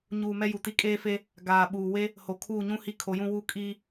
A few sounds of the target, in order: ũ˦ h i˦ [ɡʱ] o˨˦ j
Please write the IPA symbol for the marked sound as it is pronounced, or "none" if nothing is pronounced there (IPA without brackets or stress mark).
kʰ